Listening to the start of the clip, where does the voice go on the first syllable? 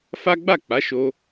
high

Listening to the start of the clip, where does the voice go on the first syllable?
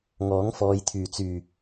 rising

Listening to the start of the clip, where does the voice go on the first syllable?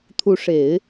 rising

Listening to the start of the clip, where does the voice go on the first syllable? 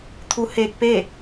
rising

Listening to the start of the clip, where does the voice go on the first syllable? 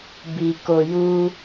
low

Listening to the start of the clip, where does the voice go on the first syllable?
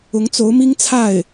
rising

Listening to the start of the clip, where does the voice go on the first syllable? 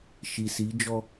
low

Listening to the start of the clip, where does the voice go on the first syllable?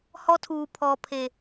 high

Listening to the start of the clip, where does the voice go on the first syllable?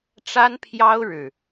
high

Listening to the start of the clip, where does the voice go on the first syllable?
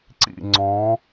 falling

